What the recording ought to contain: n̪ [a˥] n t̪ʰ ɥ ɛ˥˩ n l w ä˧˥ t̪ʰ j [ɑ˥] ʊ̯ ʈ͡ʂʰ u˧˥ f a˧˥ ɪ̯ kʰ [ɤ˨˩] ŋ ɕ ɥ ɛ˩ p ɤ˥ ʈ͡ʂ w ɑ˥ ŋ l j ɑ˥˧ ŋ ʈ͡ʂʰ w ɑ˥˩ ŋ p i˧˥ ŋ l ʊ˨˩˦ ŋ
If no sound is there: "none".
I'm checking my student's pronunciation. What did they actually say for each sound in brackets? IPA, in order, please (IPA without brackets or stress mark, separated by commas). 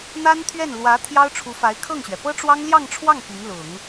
a˥, ɑ˥, ɤ˥˩